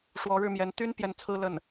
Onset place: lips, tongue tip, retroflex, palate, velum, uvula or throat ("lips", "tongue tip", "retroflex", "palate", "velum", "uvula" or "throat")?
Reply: retroflex